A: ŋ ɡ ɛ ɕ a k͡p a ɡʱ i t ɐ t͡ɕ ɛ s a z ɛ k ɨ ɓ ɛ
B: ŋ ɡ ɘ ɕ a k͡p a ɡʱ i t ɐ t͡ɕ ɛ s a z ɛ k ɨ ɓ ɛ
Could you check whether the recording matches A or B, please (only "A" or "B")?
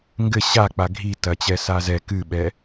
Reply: B